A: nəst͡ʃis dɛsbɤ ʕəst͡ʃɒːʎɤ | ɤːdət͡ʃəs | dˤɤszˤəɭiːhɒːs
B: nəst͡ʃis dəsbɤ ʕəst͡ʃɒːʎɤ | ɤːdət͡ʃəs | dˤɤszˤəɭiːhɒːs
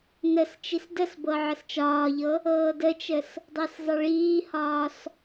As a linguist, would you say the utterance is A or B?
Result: B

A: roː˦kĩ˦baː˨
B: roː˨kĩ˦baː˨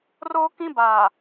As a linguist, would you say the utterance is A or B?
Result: A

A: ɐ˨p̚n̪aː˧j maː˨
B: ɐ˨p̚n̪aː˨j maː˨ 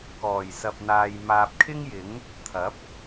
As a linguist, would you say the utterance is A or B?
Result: B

